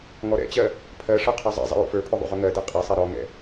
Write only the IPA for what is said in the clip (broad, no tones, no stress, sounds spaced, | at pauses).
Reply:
ŋ ɔ ɾ ɛ̰ t͡ɕ ɜ | pʰ ɜ ʂ ɔ qʰ ə˞ zˤ ɛ̰ zˤ ɛ̰ j ṵ f ə˞ pʰ ɵ ðˤ ṵ ʁ ɵ ŋ ɜ d ɛ qʼ ɛ sˤ ɛ ɾ ɔ ŋ ɛ̰